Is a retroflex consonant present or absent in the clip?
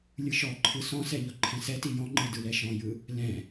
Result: absent